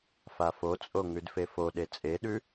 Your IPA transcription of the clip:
f a f o t͡sʼ o ŋ ʉ d f e f o ɗ e t͡sʼ e ɗ ʉ

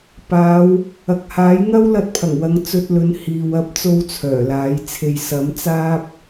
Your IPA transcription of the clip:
p aː˨˧ w | ɐ˨ k̚ h aː˨˥ j ŋ ɐ˥ w l ɐ˧ t̚ pʰ ɐ˨˩ ŋ w ɐ˨˧ ŋ t͡s ɵ˧ t̚ l ɵ˨˥ n h iː˨ w ɐ˥ p̚ t͡s o˥ w t͡sʰ œː˨˩ l aː˨˥ j t͡sʰ e˧ j s ɐ˨˥ m t͡s aː˥ p̚

